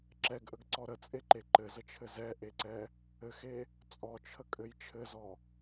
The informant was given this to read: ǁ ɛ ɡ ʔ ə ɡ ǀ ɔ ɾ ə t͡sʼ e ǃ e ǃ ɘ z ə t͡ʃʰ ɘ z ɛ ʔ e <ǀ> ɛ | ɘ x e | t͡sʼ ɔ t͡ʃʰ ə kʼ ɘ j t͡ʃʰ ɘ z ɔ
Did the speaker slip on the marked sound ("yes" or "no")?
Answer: no